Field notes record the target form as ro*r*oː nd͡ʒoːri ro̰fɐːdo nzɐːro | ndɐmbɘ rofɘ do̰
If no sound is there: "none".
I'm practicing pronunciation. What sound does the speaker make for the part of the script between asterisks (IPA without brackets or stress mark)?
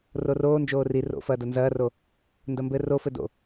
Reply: r